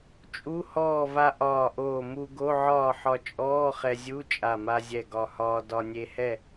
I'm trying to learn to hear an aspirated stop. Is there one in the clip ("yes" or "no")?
no